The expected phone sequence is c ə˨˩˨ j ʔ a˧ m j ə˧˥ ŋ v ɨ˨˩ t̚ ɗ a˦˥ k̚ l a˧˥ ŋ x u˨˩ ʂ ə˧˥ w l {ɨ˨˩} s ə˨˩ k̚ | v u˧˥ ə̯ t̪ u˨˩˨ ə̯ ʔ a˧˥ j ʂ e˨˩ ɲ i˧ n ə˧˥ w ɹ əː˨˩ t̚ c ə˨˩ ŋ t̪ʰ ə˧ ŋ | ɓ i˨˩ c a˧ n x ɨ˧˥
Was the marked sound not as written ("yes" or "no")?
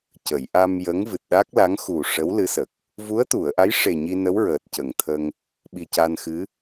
yes